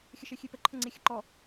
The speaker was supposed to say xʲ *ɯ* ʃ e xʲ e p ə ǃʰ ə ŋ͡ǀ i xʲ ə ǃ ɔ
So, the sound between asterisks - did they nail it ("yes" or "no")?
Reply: no